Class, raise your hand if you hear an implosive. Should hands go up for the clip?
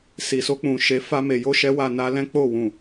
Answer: no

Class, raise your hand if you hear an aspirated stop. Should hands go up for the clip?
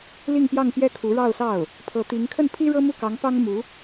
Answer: yes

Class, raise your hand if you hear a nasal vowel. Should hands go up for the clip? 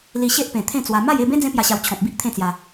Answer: yes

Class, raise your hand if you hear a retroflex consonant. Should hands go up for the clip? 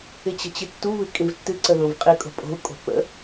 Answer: no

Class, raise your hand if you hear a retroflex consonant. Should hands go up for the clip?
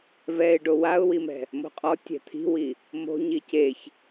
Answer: yes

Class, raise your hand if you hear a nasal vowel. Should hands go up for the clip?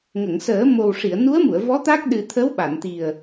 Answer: no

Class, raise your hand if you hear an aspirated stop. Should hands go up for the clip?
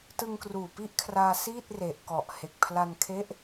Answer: yes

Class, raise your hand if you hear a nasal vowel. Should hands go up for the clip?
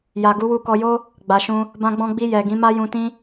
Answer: yes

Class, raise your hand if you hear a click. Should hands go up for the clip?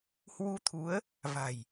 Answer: no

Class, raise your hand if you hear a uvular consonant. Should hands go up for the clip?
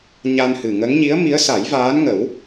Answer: no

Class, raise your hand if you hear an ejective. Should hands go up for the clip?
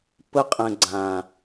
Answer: yes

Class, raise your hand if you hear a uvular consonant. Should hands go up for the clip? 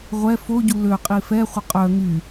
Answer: yes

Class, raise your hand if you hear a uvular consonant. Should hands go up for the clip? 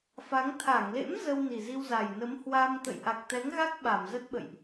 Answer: no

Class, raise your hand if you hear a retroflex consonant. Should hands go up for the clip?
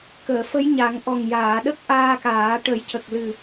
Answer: yes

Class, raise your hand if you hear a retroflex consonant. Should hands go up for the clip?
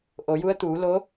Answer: no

